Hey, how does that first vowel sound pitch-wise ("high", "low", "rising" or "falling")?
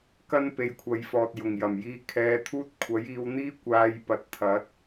high